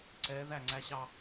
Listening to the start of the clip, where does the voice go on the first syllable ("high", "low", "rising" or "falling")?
rising